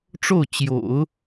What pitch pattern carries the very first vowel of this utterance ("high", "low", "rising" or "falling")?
falling